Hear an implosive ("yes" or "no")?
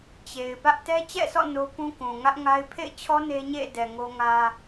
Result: no